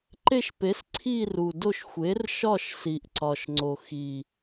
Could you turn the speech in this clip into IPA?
ǃe˦˨ʃpe˩˥s ǀʰi˦˨ru˨˩do˦˨ʃ xʷe˩˥rʃɒ˦˨ʃ si˨˩ʔǀɒ˨˩ʃŋ͡ǀo˨˩ xi˨˩

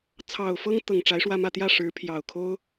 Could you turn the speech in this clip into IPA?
t͡sʰɑ˨˩ʊ̯fɤ˥ŋ t̪ɤ˨˩ŋʈ͡ʂa˧˥ɪ̯ʂwä˥˧mä˥˧ t̪jä˥˩ʂɻ̩˧˥pʰjɑ˨˩ʊ̯kʰo˥ʊ̯

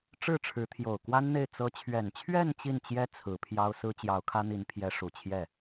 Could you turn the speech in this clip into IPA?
ʈ͡ʂɻ̩˥˩ʈ͡ʂʰɻ̩˧˥t̪ʰjo˨˩ʊ̯ kwa˥nn̪e˥˩ɪ̯ t͡sɤ˧˥t͡ɕʰɥɛ˨˩n t͡ɕʰɥɛ˥˧n t͡ɕi˥˩nt͡ɕjɛ˥ t͡sʰɹ̩˧˥pʰjɑ˥ʊ̯ sɹ̩˥t͡ɕjɑ˧˥ʊ̯kʰä˥n̪i˧˥n pʰjɛ˧˥ ʂu˨˩ t͡ɕʰjɛ˥˩

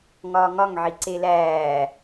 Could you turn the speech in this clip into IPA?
ŋɒːŋɒŋ ʕiǀelæː

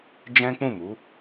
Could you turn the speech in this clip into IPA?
d͡ʒɛ̃˦k͡pũ˦˨mu˨˦

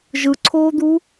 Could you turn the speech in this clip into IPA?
ʒɯǀʰoːd̪u

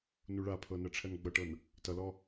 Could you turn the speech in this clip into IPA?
nuɭapʰɤ nɜʈ͡ʂʰɜnɡ͡bʌʈɤn | tʌlɔ

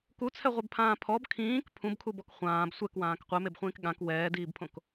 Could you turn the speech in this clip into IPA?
kut͡sʰɛʁʷɛbpʰãː pʰɔb kʰĩːk pʰũbkʰubɔk χʷãːb sʷɛkwãːk qʷɛmebχʷĩːk ɠãk wɛːdiːbpʰõk

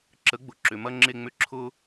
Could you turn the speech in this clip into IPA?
ǁə˨˥ɡ͡bʊ˩˧ ǁʏ˩˧mɐ˥ŋ͡ǁe˥˧ŋ͡mʏ˥˧ ǁʰʊ˥

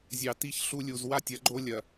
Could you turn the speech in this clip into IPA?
zʲɑ˨ti˦˨ç ɬu˦lʲu˨z wa˦tʲɐ˨˦ɡ͡ǃo˦ lʲɐ˨

